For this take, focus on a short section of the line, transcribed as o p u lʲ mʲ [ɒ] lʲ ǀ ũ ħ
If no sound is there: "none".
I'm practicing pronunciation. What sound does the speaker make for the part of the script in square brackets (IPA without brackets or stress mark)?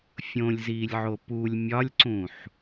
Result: ɒ